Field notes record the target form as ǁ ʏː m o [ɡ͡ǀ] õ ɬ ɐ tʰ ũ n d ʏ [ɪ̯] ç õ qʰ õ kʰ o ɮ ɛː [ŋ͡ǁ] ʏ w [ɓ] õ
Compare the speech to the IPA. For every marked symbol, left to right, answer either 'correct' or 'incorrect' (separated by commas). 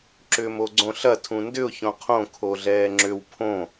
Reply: correct, incorrect, correct, incorrect